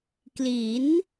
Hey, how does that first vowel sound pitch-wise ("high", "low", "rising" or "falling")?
rising